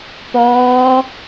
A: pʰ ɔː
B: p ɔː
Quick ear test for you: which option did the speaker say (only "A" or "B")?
B